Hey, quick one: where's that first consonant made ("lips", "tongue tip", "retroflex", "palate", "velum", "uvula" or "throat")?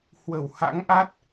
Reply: throat